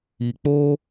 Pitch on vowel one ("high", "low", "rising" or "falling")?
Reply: low